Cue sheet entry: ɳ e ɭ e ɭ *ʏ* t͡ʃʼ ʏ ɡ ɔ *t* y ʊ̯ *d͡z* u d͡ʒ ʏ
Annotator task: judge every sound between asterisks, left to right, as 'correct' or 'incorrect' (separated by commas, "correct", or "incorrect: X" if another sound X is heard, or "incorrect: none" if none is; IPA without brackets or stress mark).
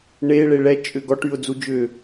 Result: incorrect: ɛ, incorrect: ʈ, correct